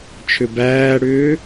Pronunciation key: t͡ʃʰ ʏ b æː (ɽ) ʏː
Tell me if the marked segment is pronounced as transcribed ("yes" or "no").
yes